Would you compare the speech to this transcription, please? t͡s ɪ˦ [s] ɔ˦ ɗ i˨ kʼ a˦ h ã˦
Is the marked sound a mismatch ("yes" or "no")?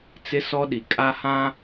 no